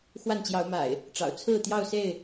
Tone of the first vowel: falling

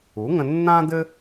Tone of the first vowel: rising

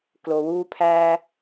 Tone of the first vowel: low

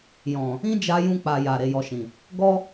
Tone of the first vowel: low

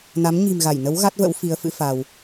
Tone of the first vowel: rising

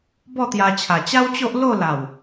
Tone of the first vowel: falling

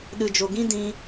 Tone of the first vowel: low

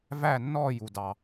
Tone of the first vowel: falling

